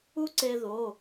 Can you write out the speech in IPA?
u˥ǀe˧ðo˩˧˩

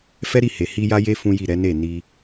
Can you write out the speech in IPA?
fɛ˦ɾi˦˨he˨hi˧ ja˧je˧ fũ˦ji˦˨ ɾɛ˨˦ne˦˨ni˧

